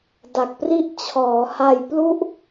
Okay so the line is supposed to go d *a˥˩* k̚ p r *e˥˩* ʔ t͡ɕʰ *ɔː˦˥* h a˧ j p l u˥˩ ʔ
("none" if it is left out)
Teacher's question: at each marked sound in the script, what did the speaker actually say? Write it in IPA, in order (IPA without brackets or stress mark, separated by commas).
a˨˩, i˥˩, ɔː˩˦